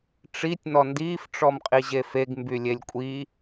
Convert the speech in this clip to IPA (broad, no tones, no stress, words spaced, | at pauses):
ʈ͡ʂitʲ nɔndiːf ʈ͡ʂɔmqʼiʑefeɡ mbylʲelʲkʷʼi